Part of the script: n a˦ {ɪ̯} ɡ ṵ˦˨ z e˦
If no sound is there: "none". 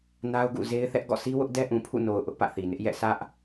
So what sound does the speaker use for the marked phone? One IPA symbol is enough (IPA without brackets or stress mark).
ʊ̯